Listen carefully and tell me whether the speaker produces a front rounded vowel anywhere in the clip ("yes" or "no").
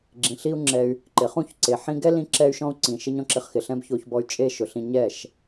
yes